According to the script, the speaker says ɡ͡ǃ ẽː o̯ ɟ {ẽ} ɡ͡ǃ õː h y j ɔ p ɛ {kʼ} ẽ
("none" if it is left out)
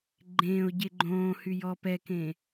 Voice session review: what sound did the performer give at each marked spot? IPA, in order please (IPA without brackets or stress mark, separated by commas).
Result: e, k